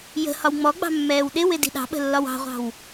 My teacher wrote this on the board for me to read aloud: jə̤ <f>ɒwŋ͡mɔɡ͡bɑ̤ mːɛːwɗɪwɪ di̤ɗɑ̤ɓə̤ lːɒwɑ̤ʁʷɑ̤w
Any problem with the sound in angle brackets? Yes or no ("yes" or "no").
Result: yes